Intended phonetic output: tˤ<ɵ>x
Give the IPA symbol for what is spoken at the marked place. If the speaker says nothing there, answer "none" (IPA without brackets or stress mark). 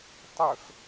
ɵ